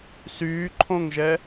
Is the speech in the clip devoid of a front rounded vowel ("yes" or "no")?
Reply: no